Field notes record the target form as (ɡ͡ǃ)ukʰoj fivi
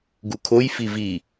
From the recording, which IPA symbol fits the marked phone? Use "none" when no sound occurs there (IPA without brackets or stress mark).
ɡ